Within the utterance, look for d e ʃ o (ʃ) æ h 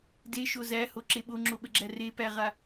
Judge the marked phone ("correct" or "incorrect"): incorrect